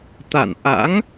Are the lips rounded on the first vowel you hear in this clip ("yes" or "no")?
no